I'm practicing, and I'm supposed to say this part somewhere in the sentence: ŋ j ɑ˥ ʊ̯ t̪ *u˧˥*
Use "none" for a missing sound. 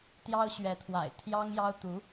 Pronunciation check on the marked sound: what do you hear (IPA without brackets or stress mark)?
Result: u˧˥